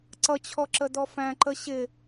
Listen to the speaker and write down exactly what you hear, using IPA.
ǀ ʌ t͡ɕʰ ɔ ǁ ə d ɔ f æ̃ ǃ ə ɕ ɪ

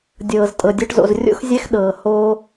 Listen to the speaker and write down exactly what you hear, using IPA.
dʲ ɤː˨ z tʼ ɤ˨ dʲ ɤ˧ ʈ z o̰˨ z rʲ o̰˦ x zʲ ɛ˦ x ɗ ɤː˨ h oː˧

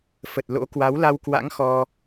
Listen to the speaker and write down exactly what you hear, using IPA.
f ə˨˩ t̚ l o̰˧˥ k w a˨˦ w l a˧ w k w a̰˧˥ ŋ x ɔ˧

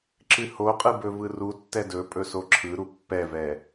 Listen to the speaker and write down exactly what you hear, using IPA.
ǁ ɨ h o qʼ ɯ b ɵ v ɯ r u tː ɛ d ɵ pʼ ɵ s o ǁʰ ɯ ɾ u pː ɛ v ɛ

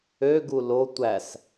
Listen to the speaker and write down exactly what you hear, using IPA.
ø ɡ u l o tʷ æ s

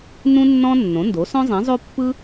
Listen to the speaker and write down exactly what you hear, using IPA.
n ũ˥ nː ɔ̃˥ nː õ˩˥ n d o˩˥ s ɔ̃˥ zˤ ĩ˩˥ zˤ o˥ pː ɯ˥

